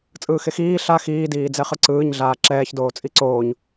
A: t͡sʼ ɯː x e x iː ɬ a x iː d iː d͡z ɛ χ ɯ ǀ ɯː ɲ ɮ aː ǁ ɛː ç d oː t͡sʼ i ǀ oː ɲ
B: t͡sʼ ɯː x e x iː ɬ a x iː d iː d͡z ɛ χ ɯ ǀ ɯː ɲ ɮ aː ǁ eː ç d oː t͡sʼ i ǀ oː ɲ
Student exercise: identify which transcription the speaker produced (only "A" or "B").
A